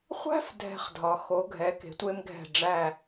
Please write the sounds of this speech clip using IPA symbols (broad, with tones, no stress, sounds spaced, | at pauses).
χʷ æ̤˥ f dʱ ɛ̤˧ χ dʱ ɒ˩˧ x o˩˧ ɡʱ ɛ˩˧ k e̤˩˧ tʷ e˧ m ɡʱ ɛ̤˧˩ ɖ͡ʐ æ˥˧